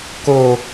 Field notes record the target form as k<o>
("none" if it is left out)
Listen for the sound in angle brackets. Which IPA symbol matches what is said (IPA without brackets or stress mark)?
o